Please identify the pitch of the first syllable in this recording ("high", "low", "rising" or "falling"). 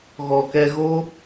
low